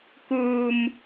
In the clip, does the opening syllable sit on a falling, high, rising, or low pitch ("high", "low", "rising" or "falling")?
low